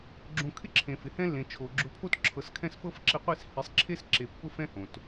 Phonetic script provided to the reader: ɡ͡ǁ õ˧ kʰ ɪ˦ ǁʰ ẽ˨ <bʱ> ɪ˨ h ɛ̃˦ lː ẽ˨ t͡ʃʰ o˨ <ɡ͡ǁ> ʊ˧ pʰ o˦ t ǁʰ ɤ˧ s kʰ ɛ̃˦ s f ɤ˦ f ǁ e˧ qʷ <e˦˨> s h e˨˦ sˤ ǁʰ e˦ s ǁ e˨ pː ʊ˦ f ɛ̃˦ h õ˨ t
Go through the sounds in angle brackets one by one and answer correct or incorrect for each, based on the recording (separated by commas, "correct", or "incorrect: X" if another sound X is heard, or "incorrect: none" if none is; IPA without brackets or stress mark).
incorrect: f, correct, correct